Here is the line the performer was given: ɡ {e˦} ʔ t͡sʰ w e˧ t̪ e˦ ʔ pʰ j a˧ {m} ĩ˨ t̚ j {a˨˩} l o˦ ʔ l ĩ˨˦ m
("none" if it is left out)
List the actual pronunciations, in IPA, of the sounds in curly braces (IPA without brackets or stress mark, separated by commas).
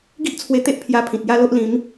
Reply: i˦, pʰ, a˦